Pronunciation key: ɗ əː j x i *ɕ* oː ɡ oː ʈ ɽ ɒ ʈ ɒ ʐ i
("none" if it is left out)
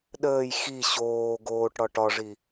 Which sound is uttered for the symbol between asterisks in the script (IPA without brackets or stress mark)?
ɕ